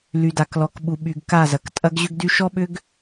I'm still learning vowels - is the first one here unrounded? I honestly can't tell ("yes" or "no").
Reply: no